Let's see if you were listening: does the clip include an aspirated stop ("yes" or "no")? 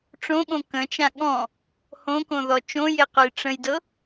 no